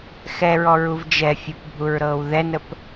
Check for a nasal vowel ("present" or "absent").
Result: absent